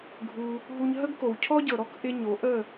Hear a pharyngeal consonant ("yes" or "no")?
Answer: no